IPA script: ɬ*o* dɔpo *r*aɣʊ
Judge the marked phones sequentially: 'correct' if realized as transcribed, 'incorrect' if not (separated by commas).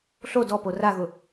correct, correct